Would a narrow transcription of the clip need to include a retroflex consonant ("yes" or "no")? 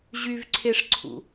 yes